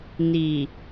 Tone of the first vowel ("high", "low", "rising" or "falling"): low